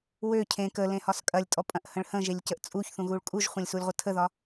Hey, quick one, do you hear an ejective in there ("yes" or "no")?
yes